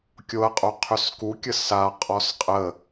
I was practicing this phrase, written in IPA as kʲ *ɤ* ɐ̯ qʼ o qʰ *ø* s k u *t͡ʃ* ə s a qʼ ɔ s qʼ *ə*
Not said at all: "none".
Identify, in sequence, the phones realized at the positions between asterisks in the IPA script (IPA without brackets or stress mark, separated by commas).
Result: o, ø, kʲ, ə